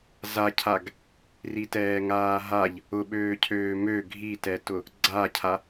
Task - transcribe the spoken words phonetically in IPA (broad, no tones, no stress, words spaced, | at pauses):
zacʰaɡ | ritɛːŋaːɦaʎ | ʊɓøːcʰøː mø ɡʱitɛtʊ | ɡ͡ǀacʰa